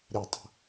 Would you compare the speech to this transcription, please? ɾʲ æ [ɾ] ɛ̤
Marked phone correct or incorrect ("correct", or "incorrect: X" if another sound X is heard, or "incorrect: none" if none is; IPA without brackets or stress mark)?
incorrect: tˤ